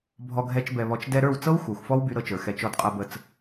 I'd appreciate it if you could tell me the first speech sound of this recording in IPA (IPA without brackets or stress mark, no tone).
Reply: bʱ